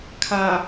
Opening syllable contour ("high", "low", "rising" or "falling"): low